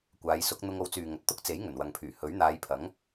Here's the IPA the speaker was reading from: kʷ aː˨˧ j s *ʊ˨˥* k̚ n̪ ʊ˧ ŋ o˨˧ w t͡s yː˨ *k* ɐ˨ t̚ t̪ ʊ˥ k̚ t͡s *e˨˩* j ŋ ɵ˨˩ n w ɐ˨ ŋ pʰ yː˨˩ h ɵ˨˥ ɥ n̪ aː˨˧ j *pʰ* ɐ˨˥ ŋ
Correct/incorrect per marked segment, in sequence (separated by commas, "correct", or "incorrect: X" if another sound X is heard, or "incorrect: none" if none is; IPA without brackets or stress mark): correct, incorrect: ŋ, incorrect: e˨˥, correct